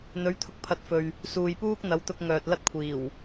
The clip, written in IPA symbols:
n̪ ɵ˨˥ ɥ t̪ʰ ʊ˧ k̚ pʰ ɐ˨˥ t̚ f ɵ˨ ɥ | s uː˨ j p uː˥ k̚ n̪ ɐ˨˥ w t̪ ʊ˧ k̚ ŋ œː˨ t̚ l ɐ˥ t̚ kʷʰ iː˨˩ w

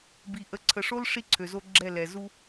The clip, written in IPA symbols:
b i˨ ʔ ə˨ ǀʰ ə˨ ʂ o˦ l ʂ i˦ ǀʰ ø˨ z o˦ ɡ͡ǁ ɛ˦˨ l ɛ˨ z u˦

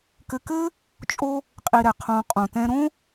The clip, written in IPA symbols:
k ɘ˧ k ɘ˦ | t͡ʃʼ o˦ | qʼ i˧ ɾ ɛ˨ qʰ õ˧ qʼ õ˨ t ɛ̃˧ ɾ õ˦

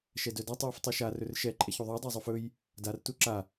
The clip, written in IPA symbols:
ʃ ɛ d œ d a tˤ j u f tˤ œ ʃ a r ɵ r ʃ ɛ ǃʼ ɛ ç u ðˤ œ dˤ ɛ zˤ o f ɵ j | d a r t u ǁ a

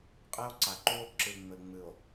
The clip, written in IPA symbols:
qʼ e˦ o̯ ǀ a˨ ǃ u˦ o̯ ǁ ɨ˨ ŋ͡m ɘ˨ ŋ͡m ɨ˨ o̯

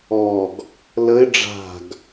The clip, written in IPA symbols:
ɔ ɡ | l ə ɪ̯ ɖ͡ʐ a̤ ɡ

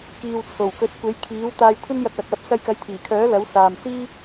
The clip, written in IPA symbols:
k iː˨ w t͡sʰ o˨˩ w k ɵ˨˥ t̚ kʷ e˨˥ j kʰ iː˨˥ w t̪ aː˧ j kʷʰ ɐ˥ n j ɐ˧ k̚ w ɐ˨ k̚ w ɐ˧ p̚ s ɐ˧ j k ɐ˨˥ j t̪ʰ iː˨˩ kʰ œː˨˥ l ɐ˨˥ w s aː˨ m s iː˥

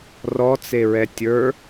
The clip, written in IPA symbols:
r ɔ t͡s e ɹ ɛ tʲ ə˞

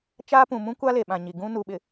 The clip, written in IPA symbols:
t͡ʃ aː˦ p ũ˨ m ũ˦ kʷ a˦ l e˨ ɓ ã˨ ɲ i˨ ɡ ũ˦ n u˨ ɓ ɪ˨

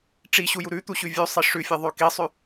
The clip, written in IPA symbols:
ʈ͡ʂ i ɕ u j u ɾ ʉ t̪ u ɕ ʉ vʲ ʉ sˤ i ʂ ʉ fʲ e ðˤ ʉ k i sˤ ʉ

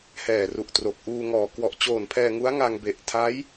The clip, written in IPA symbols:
h ɛː˨˩ r u˨˩ ʔ t r o˨˩ k̚ ʔ uː˧ ŋ ɔː˨˩ k w ɔ˨˩ ʔ t͡ɕ oː˨˩ n pʰ ɛː˧ ŋ u˦˥ a̯ ŋ a˧ ŋ b e˨˩ ʔ tʰ a˦˥ j

